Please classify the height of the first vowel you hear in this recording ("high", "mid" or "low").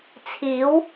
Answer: high